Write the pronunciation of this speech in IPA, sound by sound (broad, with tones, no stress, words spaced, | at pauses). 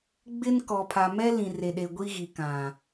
ɡ͡bɪ˦nkɔ˨pʰa˨ mɛ˦ lĩ˨re˨ɗe˨ ɡʷi˦ɣi˨ kã˨